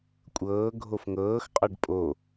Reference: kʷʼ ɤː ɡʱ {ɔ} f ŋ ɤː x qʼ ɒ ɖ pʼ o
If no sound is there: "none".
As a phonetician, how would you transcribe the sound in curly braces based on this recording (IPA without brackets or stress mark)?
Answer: o